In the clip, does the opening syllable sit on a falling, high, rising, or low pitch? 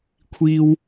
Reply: high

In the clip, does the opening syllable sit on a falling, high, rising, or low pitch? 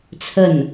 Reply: falling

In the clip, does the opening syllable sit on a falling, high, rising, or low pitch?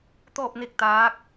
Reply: falling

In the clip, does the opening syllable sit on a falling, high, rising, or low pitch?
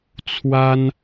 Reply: high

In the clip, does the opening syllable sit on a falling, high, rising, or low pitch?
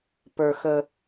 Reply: low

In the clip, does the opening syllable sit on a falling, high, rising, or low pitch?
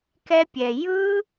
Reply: high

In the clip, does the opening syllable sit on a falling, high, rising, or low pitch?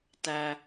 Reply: low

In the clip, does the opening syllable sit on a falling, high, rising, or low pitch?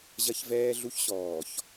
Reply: high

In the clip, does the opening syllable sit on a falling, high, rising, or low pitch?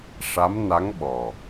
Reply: rising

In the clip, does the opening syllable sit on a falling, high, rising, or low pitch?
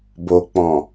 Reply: low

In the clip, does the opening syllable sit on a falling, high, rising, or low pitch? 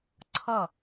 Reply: falling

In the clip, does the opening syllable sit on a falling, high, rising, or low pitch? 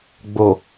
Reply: low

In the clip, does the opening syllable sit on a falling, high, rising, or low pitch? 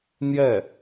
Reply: falling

